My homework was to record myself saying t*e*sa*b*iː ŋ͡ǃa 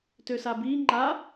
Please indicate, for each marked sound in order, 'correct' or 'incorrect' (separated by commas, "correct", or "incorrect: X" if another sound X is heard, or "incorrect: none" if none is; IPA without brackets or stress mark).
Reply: incorrect: ø, correct